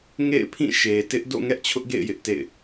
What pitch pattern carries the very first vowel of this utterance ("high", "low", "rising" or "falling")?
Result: falling